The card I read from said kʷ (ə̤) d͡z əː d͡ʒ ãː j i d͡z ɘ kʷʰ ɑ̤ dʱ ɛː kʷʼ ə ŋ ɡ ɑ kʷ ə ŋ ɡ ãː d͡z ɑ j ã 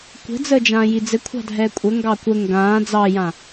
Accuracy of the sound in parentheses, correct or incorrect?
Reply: correct